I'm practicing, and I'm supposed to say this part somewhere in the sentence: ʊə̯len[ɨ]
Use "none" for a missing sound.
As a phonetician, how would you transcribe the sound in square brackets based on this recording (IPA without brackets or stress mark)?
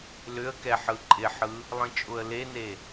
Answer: e